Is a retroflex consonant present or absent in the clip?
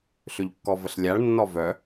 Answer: present